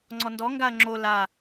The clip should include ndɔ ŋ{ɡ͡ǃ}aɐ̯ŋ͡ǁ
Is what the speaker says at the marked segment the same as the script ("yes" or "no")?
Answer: no